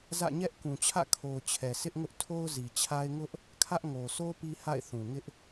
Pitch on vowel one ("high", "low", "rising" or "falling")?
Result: falling